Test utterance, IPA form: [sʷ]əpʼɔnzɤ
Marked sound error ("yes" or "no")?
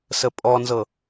yes